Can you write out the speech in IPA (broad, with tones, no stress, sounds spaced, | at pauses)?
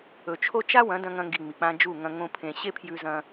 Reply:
ɵ˨ t͡ʃʰ o˦ t͡ʃ a˦ w ɐ̃˨˦ d ɐ̃˧ ŋ ɐ̃˧ ŋ ɡ i˨ ŋ͡m i˨ k͡p ã˦ d͡ʒ u˦˨ ŋ ɐ̃˧ ŋ õ˦ pʰ ẽ˧ ɕ e˦ pʰ j ʉ˧ z ɐ̃˧